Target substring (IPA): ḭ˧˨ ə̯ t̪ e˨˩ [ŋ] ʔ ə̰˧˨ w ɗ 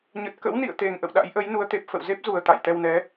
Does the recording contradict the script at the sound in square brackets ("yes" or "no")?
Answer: no